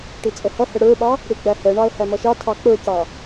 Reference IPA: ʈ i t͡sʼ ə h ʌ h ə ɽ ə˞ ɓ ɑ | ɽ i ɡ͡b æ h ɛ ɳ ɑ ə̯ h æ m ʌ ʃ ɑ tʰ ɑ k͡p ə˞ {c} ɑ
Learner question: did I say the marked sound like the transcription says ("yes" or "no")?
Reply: yes